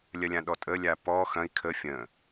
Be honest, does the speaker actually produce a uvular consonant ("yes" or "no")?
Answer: no